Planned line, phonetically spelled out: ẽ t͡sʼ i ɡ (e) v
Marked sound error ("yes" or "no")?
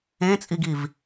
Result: yes